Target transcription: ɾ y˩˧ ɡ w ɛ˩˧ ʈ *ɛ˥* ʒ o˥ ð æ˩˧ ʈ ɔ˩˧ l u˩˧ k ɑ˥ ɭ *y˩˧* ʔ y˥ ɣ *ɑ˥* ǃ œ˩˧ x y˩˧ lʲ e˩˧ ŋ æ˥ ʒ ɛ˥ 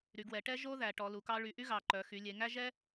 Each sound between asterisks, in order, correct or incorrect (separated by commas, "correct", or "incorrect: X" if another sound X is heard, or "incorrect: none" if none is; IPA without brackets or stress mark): correct, correct, incorrect: ɑ˩˧